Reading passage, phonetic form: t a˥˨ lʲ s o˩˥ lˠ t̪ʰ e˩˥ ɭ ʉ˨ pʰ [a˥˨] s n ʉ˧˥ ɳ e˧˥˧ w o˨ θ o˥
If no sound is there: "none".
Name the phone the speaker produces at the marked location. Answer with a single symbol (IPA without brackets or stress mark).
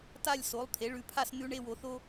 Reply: a˥˨